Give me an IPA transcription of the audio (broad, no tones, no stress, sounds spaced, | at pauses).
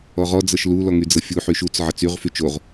ɔ ʁ ɔ d͡z ɤ ʃ l u l ɔ ŋ y d͡z ɤ fʲ u ħ y ʃ u t͡s ʕ ʌ t͡s y ʁ f y t͡ʃ o ʁ